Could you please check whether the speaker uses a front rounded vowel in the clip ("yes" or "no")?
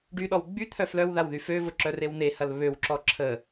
yes